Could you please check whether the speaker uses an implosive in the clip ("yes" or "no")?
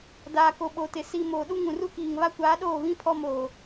yes